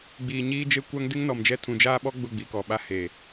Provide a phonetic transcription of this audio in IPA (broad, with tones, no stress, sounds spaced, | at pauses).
ɡ͡b iː˨ ɲ iː˦ d͡ʒ e˦ kʷ a˦ ŋ d ɪ˦ ŋ n ɔ˨ m d͡ʒ ɛ˦ tʰ ũ˨ d͡ʒ aː˦ ɓ ɔ˦ ɡ͡b ʊ˦˨ ɡ͡b i˨ k ɔ˨ ɓ a˦ h e˨